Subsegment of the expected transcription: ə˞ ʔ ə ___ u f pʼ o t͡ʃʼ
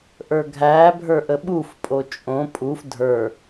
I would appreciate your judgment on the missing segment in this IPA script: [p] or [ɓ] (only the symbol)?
ɓ